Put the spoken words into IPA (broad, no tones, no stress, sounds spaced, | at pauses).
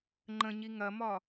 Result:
ŋ͡ǃ ə̃ ɲ i ŋ ɐ m ɒ